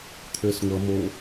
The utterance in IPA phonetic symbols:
t̪ʰ ø s ŋʷ ʌ m o

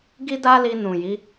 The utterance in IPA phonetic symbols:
ɡ i˦ d a˦ l i˧ n ũ˨ j i˨˦

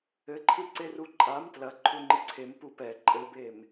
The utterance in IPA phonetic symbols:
ɘ ǃʰ ɨ ǀ e r u ǃʼ a m t l ɐ ǃʰ u ŋ͡ǃ ɨ ǀʰ e m p u p ɛ ǃʼ ɘ b e m

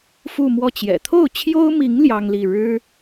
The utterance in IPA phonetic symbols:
f u˥˧ m w ɔ˥˩ t͡ɕ j ɛ̰˨˩ t̪ʰ o˥˩ ʊ̯ t͡ɕʰ j o˥ ʊ̯ m i˧˥ ŋ l j ɑ˥ ŋ l i˥˩ ɻ ɻ̩˥

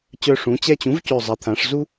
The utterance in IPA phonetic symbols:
t͡ɕ œ˧ ʂ ũ˩˥ t͡ɕ ɛ˥˨ t͡ɕ ũ˩˥ v c ø˨˩ zˤ ɛ˩˧ t̪ʰ ã˩˧ ʂ z u˥

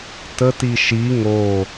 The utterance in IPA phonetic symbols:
t ə t i ʃ i ŋ o

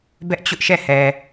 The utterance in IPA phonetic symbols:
b ɛ˦ ʔ t͡ɕ ʊ˦ ʔ ʃ ɛ˦˨ h ɛ˨

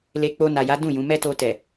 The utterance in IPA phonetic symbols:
l e˧ k͡p o˧ n a˨ j a˨˦ d ũ˦˨ j ũ˨˦ m ɛ˦ t o˧ t ɛ˨

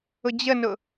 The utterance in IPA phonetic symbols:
ʊ d͡ʑ ə n ʊ

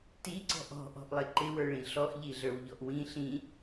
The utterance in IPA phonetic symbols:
t i ǀ ɔ̤ ʔ ɔ̤ ʔ ɔ̤ ʔ lˠ ɪ ǃ ɪ w ə˞ ɭ ĩ ɬ ɔ ʔ ʎ i ɮ ə˞ w ʎ ɔ ʔ w ĩ ɬ ĩ

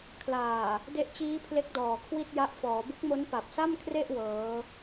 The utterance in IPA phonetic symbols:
kʰ l aː˨˩ | d e˦˥ ʔ t͡ɕ iː˦˥ pʰ l e˦˥ k̚ d ɔː˨˩ kʰ w i˥˩ t̚ j a˦˥ ʔ f ɔː˩˦ b u˦˥ k̚ m o˦˥ n p a˨˩ p̚ s a˥˩ m kʰ r e˥˩ ʔ w ɤː˦˥

